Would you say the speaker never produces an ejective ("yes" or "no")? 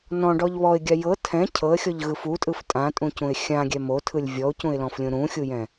no